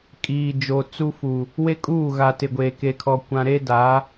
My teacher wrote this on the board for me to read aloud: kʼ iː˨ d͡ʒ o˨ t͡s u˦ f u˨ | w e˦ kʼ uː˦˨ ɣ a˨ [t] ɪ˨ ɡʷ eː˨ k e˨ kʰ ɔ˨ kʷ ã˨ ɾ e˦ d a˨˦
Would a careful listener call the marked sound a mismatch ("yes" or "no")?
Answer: no